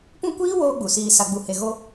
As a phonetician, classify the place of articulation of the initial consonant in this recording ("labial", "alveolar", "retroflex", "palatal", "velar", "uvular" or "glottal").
labial